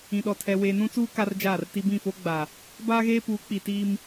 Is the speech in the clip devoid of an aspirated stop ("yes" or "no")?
no